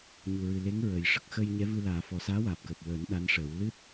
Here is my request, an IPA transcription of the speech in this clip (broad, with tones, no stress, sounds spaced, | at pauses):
ɲ u˨˩ ɹ ɨ˨˩ l e˧˥ ŋ ɹ ə˨˩ j ʂ ə˦˥ k̚ x əː˧ j ɲ ɛ˧˥ v ɨ˧ l aː˨˩˦ f ɔ˨˩ s aː˧˥ w aː˨˩ p̚ k əː˨˩ p̚ w əː˨˩˦ n ɗ a˧˥ n ʂ əː˨˩˦ w l ɨ˦˥ t̚